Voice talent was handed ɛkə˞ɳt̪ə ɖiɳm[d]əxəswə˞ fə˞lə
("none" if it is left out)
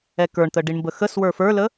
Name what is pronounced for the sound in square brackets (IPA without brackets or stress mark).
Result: b